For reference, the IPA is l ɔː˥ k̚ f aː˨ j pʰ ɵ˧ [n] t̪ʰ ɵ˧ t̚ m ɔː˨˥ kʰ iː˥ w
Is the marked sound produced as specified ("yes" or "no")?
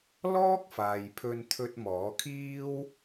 yes